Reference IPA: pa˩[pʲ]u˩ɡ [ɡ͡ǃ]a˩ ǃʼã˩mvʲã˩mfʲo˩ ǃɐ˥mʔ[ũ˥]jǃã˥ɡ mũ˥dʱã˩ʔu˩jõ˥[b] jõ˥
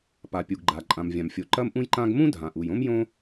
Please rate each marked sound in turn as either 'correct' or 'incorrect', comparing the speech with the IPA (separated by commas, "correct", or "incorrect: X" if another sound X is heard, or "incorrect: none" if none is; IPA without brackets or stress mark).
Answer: correct, correct, correct, incorrect: m